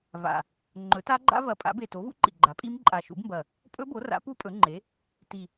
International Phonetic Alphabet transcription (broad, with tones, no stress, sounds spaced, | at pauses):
v a̰˨˩ | ŋ͡ǃ ɵ˩˥ t a˦˥ ɡ͡ǃ a̰˦˥ v ɐ˨˩ pʼ a̰˩˥ b e˨˩ t o˩˥ v ṵ˦˥ ǃ ḭ˨˩ ɡ͡ǃ a˩˥ pʼ i˦˥ m ǃʼ a˨˩ ʃ ṵ˩˥ b m b ɐ˨˩ | pʼ ɵ˦˥ b o˩˥ r a̰˩˥ p u˦˥ pʼ ɵ˩˥ ŋ͡ǃ e˩˥ | t i˨˩